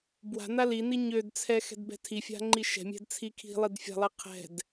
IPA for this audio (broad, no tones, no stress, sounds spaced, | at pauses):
b w a̤ n a l i n i ɲ ø d t͡sʰ ɛ x ɛ̤ d b ɛ̤ tʰ i fʲ a̤ ŋ͡ǃ i ʃ ɛ̤ mʲ ɛ̤ d t͡sʰ i kʰ i̤ lˠ i d fʲ a̤ lˠ i qʰ ɛ̤ d